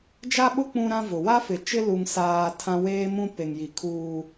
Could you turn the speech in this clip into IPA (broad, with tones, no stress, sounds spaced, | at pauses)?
d͡ʒ a˦ ɓ ʊ˦ k͡p ũ˦ ɾ ã˦ v ʊ˨ w a˦ f ɪ˨ t͡ʃ ɪ˦ l u˨ ŋ s aː˨ tʰ ã˦ w eː˦ m ũ˦ p e˨ ŋ j i˨ kʰ uː˦